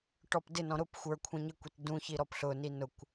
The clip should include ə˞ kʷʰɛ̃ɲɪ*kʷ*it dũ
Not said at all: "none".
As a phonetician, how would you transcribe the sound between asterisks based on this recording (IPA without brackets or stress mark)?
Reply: kʷ